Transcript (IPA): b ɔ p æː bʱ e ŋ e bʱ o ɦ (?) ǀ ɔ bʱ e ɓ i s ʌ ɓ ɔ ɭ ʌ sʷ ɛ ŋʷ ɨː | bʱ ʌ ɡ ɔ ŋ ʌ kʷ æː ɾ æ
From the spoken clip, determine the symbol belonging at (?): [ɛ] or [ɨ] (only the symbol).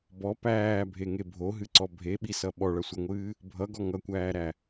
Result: ɨ